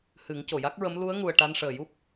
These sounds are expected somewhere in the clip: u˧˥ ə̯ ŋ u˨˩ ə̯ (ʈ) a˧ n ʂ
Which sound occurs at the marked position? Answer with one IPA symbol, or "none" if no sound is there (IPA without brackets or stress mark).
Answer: ʈ